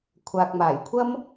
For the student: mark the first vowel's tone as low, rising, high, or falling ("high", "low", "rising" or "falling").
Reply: low